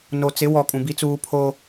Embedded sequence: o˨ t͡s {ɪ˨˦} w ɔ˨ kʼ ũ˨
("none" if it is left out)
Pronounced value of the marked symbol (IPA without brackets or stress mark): ɪ˨˦